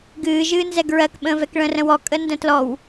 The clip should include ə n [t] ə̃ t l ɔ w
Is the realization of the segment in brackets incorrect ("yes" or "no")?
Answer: yes